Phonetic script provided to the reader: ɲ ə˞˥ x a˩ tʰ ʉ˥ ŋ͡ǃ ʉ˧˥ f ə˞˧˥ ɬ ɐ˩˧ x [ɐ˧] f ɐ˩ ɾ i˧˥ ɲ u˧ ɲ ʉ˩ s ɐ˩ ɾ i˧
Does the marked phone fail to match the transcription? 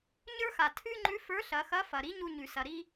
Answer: yes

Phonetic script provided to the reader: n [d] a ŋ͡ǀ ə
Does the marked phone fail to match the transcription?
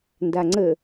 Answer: no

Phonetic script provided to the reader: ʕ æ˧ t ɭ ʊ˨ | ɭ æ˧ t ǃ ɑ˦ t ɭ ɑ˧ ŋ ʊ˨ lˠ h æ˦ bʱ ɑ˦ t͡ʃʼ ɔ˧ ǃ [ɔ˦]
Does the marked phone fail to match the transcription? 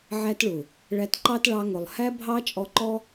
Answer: no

